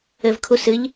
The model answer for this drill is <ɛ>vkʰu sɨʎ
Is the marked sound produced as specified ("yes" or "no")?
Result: no